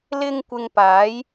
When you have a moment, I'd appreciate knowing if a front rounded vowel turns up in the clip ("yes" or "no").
no